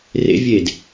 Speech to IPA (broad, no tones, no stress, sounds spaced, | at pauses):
r ḛ vʲ e d